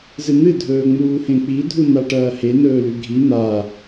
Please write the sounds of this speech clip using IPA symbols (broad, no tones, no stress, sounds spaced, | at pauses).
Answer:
z ɨ n̪ ɨ dʱ ɵː ŋ͡m uː h ẽ k͡p i dʱ u n a ʈ ɐː h e n ɵː l ʉ ɡʱ i n̪ a